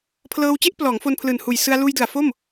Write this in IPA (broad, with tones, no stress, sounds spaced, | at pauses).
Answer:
pʰ l ɤː˧ w t͡ɕ e˦˥ ʔ p l ɔː˩˦ ŋ f o˧ n pʰ l ɯː˨˩ n h uː˨˩ j s ɯ˧ a̯ l uː˧ j d ɯ˨˩ a̯ f o˥˩ m